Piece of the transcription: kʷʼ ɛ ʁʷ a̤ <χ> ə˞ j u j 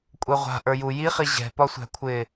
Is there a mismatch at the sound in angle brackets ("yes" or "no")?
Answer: yes